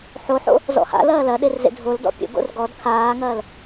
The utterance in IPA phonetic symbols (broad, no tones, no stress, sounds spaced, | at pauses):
ħ o ħ o̰ | z ɔ̰ h a̰ l ɐː l ɐ ɗ e r z ḛ dʱ o l d ɔ̰ pʲ o̰ ɡ o̰ r ɡ ɔ d kʰ aː ŋ ɐː l